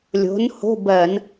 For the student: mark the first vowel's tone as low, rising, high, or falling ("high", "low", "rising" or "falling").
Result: rising